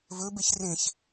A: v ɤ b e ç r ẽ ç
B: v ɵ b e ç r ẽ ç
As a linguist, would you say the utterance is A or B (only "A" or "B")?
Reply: B